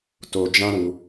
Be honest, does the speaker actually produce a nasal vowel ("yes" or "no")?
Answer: yes